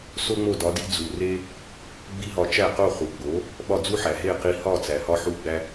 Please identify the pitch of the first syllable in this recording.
high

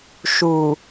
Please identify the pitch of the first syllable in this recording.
low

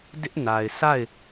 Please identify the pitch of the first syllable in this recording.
high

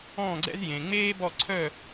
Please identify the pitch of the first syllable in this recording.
falling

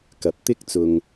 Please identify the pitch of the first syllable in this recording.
low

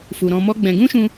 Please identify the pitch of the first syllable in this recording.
low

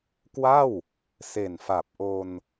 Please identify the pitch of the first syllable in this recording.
falling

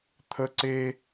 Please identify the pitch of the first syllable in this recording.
high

